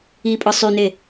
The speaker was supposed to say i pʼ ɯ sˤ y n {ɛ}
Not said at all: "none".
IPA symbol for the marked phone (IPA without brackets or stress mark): e